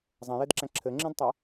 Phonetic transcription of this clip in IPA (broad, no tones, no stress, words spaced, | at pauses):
zˤẽjedǁæ̃ ǁʰɘŋ͡ǁẽdtˤæ